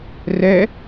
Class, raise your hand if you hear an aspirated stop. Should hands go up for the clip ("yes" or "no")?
no